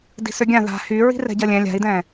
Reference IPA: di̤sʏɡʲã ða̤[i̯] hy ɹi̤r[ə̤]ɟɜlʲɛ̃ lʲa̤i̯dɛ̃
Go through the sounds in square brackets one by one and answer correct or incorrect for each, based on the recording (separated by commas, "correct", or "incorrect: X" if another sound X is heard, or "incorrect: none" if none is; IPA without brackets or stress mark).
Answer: incorrect: none, incorrect: ɛ̤